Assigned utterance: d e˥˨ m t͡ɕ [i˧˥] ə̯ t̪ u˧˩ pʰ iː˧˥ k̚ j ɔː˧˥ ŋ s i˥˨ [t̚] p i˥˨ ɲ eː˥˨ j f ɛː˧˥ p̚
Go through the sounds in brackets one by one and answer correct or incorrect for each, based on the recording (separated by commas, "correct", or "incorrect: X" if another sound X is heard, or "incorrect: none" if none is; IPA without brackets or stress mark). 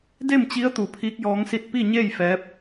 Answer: correct, correct